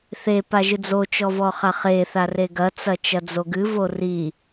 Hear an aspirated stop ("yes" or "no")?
no